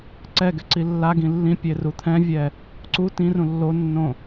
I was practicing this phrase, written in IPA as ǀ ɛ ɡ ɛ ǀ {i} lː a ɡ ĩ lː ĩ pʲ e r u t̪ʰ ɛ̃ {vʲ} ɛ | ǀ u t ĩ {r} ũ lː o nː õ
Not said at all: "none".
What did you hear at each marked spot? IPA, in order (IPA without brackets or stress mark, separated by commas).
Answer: i, vʲ, r